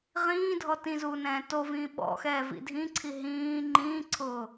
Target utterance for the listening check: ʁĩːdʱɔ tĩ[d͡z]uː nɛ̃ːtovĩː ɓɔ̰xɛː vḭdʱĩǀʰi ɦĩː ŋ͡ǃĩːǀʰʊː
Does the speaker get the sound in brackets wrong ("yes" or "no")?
yes